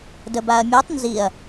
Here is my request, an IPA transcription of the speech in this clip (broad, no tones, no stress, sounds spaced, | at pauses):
d ə b a ɐ̯ mʲ u tˤ n z i ɐ̯